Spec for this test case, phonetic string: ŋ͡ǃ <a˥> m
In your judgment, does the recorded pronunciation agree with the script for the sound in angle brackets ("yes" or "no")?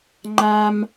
yes